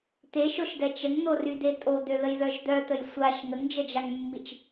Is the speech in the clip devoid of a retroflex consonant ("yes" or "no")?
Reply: yes